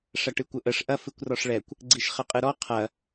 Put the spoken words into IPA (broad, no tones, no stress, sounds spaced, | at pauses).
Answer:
ʂ ɐ ʈ ɨ kʷ ə ʔ ə ʂ ʔ ɐ f ɨ kʷ r ɔ ʂ ɭ ɛ kʷ | ɡ͡ǀ i ʃ χ ə qʼ ɨ ɾ ɔ qʰ ɐ